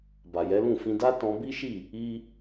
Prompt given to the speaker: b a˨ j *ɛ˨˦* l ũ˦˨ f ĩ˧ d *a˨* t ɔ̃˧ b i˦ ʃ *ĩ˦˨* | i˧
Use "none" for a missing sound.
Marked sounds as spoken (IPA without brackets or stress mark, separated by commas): ɛ˨˦, a˦, i˦˨